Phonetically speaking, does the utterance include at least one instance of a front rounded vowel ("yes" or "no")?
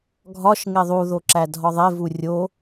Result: no